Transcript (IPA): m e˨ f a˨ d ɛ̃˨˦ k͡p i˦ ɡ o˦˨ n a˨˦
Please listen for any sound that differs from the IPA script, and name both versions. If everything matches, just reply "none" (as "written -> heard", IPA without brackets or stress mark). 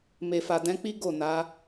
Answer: none